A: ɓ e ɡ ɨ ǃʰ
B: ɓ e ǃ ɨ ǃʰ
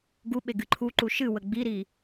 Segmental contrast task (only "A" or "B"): A